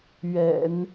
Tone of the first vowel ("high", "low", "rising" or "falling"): low